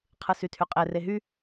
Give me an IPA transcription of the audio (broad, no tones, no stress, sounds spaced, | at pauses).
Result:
qʰ ɯ s y tʰ y qʼ e r e ɦ y